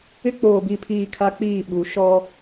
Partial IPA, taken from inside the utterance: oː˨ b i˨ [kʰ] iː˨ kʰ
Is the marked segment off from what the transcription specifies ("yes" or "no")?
yes